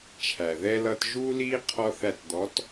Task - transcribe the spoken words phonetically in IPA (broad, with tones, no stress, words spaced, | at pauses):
t͡ʃʰæ˨ðɛ˦lʌ˦t ʒuː˦liː˦ qʰɔ˦θæ˦˨t d̪ɔ˨˦t